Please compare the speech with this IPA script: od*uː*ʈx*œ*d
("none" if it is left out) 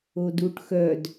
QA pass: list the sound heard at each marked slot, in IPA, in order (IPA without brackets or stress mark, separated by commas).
uː, œ